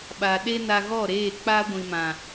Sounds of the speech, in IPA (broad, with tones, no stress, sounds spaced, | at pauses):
ɓ a˨ ɗ e˦ n a˧ ɣ ɔ˦˨ ɾ eː˦˨ k͡p a˦ ɡʷ ĩ˨ m ã˨